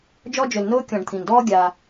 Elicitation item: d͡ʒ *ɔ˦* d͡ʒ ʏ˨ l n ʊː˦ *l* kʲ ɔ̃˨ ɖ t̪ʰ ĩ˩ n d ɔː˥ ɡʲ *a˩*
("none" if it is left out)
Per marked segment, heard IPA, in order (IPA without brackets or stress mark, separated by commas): ɔ˦, none, a˨